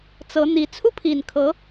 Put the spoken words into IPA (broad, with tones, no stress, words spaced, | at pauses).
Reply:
t͡sɤ˧˥n̪i˧˥ t͡sʰu˥˩pʰi˨˩nkʰɤ˧˥